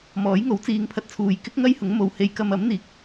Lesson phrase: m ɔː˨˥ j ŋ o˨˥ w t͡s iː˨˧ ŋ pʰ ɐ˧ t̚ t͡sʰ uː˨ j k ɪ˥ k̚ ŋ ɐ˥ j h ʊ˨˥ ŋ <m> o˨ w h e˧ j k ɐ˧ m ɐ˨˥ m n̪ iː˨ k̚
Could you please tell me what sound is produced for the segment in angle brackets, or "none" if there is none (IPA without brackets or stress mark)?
m